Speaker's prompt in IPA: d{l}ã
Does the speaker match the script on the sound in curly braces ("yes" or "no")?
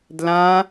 yes